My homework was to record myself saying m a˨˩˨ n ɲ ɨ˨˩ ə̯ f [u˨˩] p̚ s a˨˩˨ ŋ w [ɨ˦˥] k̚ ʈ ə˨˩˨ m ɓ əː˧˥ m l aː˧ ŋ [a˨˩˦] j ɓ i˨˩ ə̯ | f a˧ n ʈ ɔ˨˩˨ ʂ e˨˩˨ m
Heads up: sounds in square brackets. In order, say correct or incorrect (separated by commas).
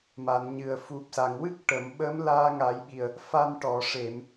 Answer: correct, correct, correct